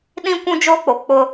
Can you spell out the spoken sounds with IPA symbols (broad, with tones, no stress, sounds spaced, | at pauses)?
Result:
ɗ ĩ˦ kʷ ũ˦ d͡ʒ oː˦ k͡p o˨ k͡p ʊ˦